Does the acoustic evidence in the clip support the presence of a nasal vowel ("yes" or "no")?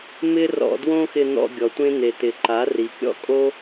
yes